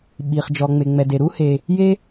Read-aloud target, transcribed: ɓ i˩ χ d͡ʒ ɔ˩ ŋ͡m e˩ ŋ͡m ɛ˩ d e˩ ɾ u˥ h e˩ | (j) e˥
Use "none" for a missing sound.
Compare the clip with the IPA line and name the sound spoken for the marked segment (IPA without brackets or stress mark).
j